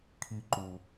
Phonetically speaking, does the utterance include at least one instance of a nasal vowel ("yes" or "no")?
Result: no